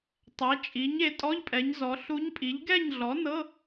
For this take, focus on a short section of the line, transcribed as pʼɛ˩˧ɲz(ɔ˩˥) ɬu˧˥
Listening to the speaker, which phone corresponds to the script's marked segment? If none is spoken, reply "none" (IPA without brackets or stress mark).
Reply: ɔ˩˧